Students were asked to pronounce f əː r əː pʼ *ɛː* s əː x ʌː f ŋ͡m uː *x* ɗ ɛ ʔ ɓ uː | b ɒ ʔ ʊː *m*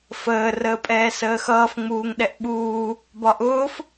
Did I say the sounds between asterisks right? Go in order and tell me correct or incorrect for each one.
correct, incorrect, incorrect

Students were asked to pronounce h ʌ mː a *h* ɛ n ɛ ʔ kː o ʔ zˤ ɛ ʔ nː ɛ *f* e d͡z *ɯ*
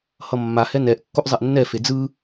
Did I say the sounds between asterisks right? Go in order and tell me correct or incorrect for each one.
correct, correct, correct

